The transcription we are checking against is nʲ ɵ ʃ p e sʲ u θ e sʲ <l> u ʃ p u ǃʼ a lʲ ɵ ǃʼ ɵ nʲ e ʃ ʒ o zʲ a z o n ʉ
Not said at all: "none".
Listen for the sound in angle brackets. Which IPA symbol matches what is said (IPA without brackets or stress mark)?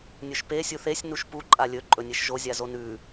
n